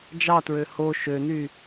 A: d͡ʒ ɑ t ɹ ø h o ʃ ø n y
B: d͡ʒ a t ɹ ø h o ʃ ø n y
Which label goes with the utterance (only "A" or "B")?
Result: A